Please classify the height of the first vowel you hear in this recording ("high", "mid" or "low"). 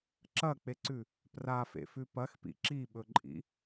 low